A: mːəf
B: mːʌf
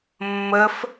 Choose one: A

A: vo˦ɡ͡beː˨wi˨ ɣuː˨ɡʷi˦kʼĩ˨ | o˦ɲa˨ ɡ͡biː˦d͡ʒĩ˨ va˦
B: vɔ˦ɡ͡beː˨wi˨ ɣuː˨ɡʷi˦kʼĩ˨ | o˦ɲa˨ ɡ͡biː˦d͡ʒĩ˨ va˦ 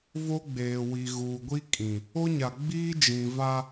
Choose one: A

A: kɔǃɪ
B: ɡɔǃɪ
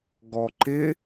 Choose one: B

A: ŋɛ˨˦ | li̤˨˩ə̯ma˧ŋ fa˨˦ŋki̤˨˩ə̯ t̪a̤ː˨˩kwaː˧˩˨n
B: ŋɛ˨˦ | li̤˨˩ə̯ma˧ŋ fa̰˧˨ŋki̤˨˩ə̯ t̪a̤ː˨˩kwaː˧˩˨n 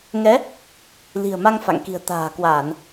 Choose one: B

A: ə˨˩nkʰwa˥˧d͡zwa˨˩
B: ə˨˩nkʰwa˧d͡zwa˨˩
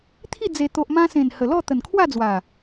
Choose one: A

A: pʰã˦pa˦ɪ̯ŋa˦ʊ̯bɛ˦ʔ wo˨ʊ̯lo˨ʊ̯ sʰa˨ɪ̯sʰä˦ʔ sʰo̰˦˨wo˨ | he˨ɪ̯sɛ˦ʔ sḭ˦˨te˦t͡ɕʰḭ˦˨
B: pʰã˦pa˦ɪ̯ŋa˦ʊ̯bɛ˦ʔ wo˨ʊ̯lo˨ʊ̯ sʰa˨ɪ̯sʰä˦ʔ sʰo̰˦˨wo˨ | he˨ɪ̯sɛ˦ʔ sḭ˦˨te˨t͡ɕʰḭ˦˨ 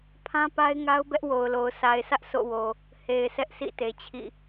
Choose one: B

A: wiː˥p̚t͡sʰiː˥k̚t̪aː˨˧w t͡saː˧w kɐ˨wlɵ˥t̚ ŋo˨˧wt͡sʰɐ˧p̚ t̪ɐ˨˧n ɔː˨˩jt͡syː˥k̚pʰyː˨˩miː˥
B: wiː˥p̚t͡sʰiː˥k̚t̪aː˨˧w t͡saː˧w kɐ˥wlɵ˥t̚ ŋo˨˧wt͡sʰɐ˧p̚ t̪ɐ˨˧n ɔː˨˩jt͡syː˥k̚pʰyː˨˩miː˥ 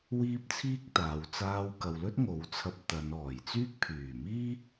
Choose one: A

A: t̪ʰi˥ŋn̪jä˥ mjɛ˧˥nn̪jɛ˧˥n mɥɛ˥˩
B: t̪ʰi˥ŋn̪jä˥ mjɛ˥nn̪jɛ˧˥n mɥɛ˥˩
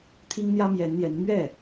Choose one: A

